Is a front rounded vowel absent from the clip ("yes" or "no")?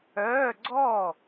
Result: no